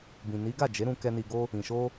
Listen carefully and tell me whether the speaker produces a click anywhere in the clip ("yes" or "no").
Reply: no